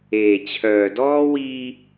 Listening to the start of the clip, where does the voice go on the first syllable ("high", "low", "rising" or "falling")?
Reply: low